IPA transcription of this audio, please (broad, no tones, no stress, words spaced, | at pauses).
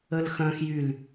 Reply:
əlxœ̃xjyl